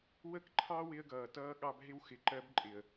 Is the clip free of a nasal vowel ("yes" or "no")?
yes